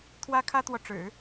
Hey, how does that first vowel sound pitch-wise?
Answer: high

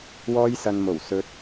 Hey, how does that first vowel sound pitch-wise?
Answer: high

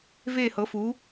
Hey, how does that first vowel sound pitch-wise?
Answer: falling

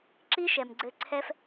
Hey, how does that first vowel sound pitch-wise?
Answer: high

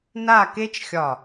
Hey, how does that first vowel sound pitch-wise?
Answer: falling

